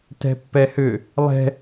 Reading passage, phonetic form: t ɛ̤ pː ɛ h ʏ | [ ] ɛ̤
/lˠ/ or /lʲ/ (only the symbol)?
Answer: lˠ